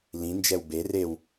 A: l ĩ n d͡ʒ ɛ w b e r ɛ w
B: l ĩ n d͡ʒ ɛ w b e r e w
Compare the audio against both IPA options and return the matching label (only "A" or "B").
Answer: B